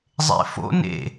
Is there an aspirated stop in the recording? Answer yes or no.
no